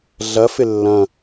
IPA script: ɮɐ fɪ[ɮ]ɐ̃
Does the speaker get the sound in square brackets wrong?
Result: yes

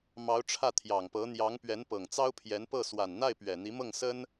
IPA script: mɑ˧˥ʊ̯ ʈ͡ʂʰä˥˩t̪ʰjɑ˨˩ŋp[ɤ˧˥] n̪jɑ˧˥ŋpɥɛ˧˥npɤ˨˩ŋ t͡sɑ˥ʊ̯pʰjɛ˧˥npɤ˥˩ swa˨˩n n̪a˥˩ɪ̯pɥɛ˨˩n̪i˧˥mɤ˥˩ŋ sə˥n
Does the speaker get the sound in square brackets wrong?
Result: no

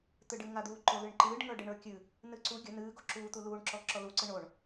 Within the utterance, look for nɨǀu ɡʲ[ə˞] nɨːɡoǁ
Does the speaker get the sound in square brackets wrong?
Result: yes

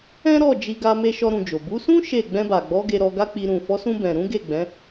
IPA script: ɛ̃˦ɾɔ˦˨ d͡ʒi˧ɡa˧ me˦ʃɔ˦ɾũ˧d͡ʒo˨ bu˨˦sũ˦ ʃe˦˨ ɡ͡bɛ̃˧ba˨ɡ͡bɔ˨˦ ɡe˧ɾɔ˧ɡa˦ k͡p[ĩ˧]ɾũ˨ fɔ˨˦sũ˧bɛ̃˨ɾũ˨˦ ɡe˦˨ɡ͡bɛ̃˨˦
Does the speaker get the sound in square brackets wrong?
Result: yes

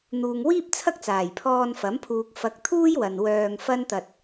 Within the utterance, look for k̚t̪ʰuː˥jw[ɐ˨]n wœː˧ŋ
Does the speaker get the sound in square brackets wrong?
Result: no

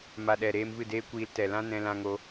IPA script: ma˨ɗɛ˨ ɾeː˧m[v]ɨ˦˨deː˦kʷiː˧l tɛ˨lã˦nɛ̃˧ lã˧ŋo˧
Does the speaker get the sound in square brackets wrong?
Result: no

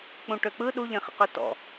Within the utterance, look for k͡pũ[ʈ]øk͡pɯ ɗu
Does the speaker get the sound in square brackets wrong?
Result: no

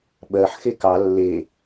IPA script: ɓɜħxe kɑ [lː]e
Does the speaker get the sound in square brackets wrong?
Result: no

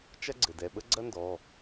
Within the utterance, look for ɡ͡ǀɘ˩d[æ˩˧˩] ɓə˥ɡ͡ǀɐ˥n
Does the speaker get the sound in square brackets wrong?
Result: yes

